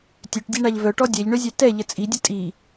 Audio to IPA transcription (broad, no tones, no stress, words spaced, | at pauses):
tʲøʈdʲeɳaʎ vœʈɔ dʲɛʎɳøzʲɛ tɛ ʎət͡sʼidʲə tʼi